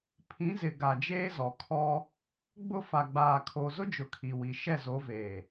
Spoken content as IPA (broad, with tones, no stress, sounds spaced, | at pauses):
pʰ ĩ˨˦ z ɪ˨ ɡ a˨ d͡ʒ eː˦ z ɔ˨ kʰ ɔ˦ | ɡ͡b ʊ˦˨ f a˨ ɡ͡b aː˨ kʰ o˨ z ʊ˦ d͡ʒ ʊ˨ kʰ i˨ w i˨ ʃ ɛ˦˨ z o˨˦ v eː˨